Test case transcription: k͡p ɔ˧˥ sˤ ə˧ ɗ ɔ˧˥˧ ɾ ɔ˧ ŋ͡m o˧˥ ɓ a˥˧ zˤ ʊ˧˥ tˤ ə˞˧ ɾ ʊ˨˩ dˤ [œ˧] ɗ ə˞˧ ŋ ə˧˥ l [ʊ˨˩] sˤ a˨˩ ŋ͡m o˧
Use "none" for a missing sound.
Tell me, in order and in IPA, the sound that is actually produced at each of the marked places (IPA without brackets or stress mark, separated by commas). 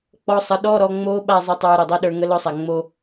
ɛ˧, ʊ˧˥